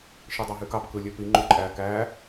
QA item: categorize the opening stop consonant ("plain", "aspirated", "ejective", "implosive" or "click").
plain